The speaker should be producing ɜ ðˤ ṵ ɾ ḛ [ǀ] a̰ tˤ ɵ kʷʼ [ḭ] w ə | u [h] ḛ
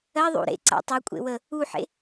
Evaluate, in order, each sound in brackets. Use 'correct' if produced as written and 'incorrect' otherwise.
correct, incorrect, incorrect

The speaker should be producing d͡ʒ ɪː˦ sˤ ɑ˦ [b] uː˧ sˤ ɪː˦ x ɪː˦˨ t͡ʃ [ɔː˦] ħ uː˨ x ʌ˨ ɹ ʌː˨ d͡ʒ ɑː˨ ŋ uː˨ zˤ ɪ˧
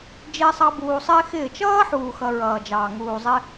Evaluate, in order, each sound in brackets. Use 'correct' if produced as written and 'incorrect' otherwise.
correct, incorrect

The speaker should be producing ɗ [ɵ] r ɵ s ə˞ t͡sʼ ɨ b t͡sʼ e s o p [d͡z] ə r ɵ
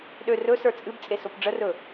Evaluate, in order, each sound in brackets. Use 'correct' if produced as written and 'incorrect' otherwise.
incorrect, incorrect

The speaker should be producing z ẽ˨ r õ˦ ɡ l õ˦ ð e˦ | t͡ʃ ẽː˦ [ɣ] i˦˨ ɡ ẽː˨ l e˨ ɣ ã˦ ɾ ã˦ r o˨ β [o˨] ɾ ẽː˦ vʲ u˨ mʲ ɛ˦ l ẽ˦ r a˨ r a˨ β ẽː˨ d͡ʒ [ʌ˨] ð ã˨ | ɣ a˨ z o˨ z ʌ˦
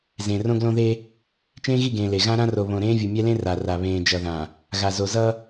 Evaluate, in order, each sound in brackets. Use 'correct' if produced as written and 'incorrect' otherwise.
correct, incorrect, correct

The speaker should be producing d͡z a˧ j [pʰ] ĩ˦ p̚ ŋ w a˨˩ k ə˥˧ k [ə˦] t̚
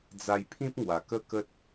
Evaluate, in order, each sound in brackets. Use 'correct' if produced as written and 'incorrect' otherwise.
correct, correct

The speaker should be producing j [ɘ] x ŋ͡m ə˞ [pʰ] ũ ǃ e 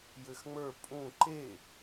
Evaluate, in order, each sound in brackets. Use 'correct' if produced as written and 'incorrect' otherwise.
correct, incorrect

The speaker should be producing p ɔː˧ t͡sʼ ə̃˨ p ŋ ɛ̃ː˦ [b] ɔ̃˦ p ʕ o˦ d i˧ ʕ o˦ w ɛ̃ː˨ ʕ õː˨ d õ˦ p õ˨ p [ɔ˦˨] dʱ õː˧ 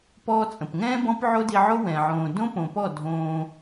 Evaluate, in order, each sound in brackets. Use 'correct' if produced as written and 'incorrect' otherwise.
correct, correct

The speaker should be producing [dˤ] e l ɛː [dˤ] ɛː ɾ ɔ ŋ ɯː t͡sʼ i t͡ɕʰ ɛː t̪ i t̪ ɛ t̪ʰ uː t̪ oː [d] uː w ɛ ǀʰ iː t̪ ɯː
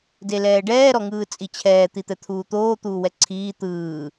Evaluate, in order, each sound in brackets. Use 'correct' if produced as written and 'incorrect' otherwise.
incorrect, incorrect, incorrect

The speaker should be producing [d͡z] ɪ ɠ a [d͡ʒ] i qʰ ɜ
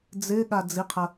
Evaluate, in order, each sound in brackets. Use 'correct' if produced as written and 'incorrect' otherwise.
correct, incorrect

